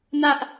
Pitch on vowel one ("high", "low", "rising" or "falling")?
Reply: high